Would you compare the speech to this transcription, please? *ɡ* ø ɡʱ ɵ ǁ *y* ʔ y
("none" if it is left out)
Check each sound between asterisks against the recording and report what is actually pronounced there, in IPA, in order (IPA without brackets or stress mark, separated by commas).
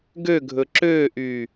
ɡ, ø